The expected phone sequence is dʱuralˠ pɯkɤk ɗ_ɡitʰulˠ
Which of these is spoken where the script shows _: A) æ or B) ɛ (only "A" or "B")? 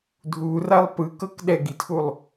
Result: B